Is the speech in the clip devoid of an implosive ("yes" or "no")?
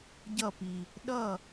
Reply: no